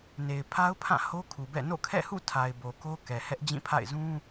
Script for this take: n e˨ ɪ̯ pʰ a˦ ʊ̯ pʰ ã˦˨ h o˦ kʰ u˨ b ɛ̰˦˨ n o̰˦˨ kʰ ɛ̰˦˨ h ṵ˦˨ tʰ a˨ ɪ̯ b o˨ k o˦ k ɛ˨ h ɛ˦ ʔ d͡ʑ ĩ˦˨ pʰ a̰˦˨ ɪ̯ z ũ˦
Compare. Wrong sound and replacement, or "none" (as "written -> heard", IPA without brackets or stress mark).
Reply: none